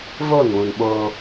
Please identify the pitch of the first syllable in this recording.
falling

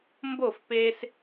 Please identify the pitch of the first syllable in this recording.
falling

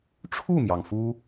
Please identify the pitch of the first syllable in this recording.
falling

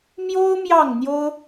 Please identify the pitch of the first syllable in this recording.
high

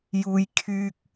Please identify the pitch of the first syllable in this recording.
low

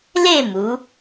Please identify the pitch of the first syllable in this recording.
falling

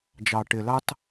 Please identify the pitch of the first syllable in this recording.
low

